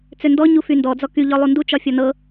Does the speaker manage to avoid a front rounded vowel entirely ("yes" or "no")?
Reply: no